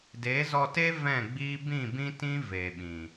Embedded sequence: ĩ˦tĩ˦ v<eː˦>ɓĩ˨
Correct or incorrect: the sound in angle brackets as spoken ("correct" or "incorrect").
incorrect